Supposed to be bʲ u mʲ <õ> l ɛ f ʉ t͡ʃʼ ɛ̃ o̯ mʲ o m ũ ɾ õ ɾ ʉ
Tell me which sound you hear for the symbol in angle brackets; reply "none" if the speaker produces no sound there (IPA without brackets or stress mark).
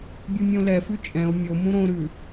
õ